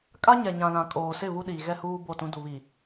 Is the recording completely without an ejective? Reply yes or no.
no